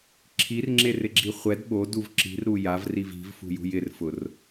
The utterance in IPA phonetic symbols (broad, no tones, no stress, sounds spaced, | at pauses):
ǁʰ i r ŋ͡ǁ e r ɪ ɡ͡ǁ i χʷ ɛ d ɓ o d u v ǁ i̤ r ɾ u j a v r i v i̤ v f ṳ j ṳ j ɪ r f ʊ r